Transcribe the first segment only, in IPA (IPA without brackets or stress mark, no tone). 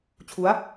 t͡ɕʰ